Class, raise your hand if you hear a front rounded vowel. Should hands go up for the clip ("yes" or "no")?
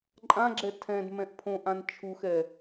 no